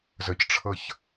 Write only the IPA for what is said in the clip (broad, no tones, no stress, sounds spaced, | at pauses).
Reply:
z ə c ʈ͡ʂʰ ɤ ç